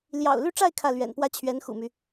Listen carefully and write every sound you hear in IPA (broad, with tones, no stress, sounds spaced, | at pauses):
l j ɑ̰˨˩ ʊ̯ l y˥˧ ʈ͡ʂ a˥˧ ɪ̯ kʰ ä˥˩ l ɥ ɛ̰˨˩ n p w ä˥ t͡ɕʰ ɥ ɛ˧˥ n x ṵ˨˩ m y˦